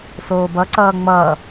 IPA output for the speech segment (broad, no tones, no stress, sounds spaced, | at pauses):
s oː b ʌ ǀ ʌː ŋ͡m ʌː